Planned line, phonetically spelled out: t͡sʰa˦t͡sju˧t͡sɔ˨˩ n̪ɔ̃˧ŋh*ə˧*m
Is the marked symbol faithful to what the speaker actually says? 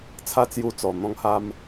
no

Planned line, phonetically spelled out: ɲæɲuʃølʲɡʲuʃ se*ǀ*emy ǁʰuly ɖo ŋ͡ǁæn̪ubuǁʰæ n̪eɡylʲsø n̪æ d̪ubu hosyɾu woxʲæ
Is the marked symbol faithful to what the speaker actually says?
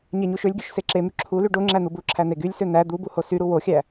no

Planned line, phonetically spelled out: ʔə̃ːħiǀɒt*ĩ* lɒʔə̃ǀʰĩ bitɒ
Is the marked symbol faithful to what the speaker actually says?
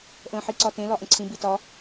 no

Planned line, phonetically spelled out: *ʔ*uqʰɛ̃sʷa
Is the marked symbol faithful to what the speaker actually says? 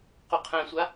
no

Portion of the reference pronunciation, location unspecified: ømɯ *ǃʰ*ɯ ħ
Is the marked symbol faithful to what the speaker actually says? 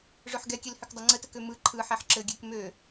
yes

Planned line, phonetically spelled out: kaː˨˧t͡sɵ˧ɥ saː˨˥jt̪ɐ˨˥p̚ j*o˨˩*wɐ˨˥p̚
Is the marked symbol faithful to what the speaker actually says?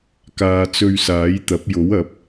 no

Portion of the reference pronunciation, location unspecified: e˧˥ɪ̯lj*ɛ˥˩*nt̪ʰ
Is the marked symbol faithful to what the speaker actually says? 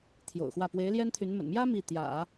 no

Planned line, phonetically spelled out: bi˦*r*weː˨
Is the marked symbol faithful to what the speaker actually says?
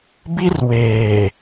yes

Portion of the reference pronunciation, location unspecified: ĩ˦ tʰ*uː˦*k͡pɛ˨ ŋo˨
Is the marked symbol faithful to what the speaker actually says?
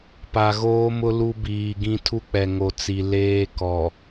no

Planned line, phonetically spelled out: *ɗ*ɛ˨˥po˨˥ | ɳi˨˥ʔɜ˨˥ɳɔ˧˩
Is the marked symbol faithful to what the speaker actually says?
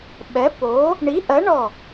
no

